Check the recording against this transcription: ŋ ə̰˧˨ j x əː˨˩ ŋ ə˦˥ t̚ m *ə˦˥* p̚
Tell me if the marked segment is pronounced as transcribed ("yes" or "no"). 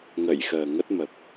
no